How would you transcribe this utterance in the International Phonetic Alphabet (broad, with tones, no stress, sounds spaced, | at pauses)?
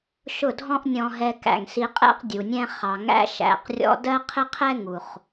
ʃ ʊ˦˨ dʱ ɔ̃˦ ʔ nʲ ɔ̃˧ ɦ ɛ˧ k æ̰˨ ŋ s i˧ qʼ ɛ̰˦ q dʲ u˨ nʲ ɛ̃˦ χ ɑ˨ ŋ æ̰˦ ʃ æ̰˧ q rʲ ɔ̰˦ d ɜ˦ qʰ ɪ˦ qʰ ɛ˦ ŋ u˨ χ